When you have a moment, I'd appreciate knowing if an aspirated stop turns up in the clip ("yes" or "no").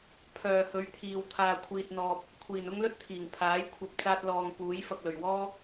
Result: yes